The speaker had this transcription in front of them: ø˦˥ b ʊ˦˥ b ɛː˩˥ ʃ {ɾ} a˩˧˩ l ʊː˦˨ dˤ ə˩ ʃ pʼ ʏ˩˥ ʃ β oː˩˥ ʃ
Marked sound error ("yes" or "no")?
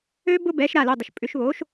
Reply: no